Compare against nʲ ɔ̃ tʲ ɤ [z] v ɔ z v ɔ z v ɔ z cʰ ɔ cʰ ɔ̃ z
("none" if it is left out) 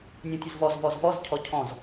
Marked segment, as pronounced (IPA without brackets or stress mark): z